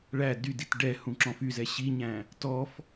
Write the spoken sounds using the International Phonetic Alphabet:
ɭæ dydit ɖɛ hũǁɔ̃fyzɛ ɕiɲæ̃ | tɔf

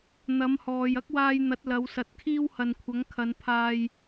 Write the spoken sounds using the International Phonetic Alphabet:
n̪ɐ˨˥mhɔː˨j ɐ˥k̚waː˧j n̪ɐ˨˥t̚lɐ˨˧wsɐ˨t̚kʰiː˥w hɐ˨nkʷʰɐ˨˥ŋkʰɐ˨˧n pʰaː˧j

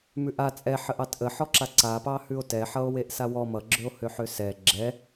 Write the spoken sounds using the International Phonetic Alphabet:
mʉʔa t͡sʼɛħəʔ ɑtʔə ħɔǁaǀapɑ hʉo̯tɛħʌo̯ weʔsawɔ mʌɡ͡ǁøo̯hø ħøsɛ ɡ͡ǁɛ

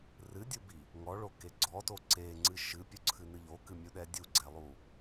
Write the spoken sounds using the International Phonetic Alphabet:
rɨdʲubi | ŋɔɭoke ɡ͡ǀɔto ǀeŋ͡ǀɨ ʃɨpʲoǀʰɨnɨ ʎokɨmʲuɗɛ dʲuɡ͡ǀɛlˠu

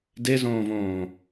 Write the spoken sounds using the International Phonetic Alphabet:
dezõːvõː

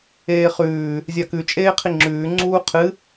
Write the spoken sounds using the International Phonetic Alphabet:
eːχʉː | zʲakʉ t͡ʃʼeːqʰiŋ͡ǁʉː ŋ͡ǀuːqʰɨ

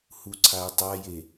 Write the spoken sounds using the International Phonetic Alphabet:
huǀʰay̯tˤaje

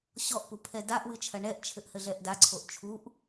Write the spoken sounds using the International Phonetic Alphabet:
ɕɔʔpu pʰɛdaʔwɨ t͡ʃʰɐɳɛʔt͡ʃʰɘʔ hɘɮɛʔdaǀʰoʔ t͡ʃʰuʔ

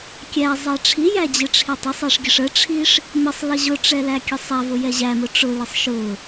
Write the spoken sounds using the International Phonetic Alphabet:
kʲæ zˤɛʈ͡ʂʰijæ d͡ʑɪʈ͡ʂʰitˤɪsˤɛʂ ɡʲəʂəʈ͡ʂʰiʂ | məsˤ ləʑʊʈ͡ʂɛ lækʲəsˤævʊ jɛʑæmʊ ʈ͡ʂʊlɪsˤ ʃʊ

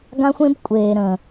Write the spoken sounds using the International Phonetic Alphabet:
ɡã˦xʷẽ˦b kʷʼeː˨ ɾə̃ː˨

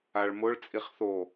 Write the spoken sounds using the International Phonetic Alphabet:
aɭmʊɭ t͡sʼiχθo

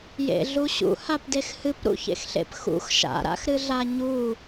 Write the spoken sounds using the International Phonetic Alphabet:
jḛɮuɕṵ hapdexhɨpɾṵ çḛxɬḛpxṵx ʃa̰ɾa̰xɾɨ ɮaɲu

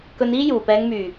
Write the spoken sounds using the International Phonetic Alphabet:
kɵ˧niː˥ juː˨˩pɛː˨˧ŋmyː˨˩

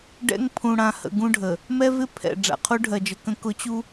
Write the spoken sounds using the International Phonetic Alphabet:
ɖɛ̰˦ŋ pʰũ˨ɽã˨hə̰˨ ɡũ˦ɖʱə˨ | mɛ˦vɪ˦ pʰɛ̰˨ ɖ͡ʐa̰˨ qʰu˦ɖʱɜ˨d͡ʒə˨kə̃˦ kʊ˦t͡ɕu˦

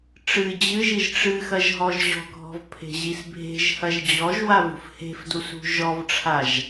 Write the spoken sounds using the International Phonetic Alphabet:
ʈ͡ʂɨ d͡ʑɨʒiʒ ʈ͡ʂɨxɐʒ ɦɔʒʑɔ̤ɡʱɔ̤v pʰe̤ʑisbʱe̤ʒhɐʒ d͡ʑɔʒwa vṳfhe̤fdus ṳʒɔvʈ͡ʂʰaʒ

